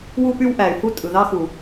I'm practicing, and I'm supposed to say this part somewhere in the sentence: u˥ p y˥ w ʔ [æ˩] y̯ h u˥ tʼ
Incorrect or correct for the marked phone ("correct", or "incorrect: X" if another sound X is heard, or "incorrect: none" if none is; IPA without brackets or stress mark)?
correct